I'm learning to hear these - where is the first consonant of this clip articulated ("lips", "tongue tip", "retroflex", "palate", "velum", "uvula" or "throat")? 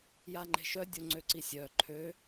palate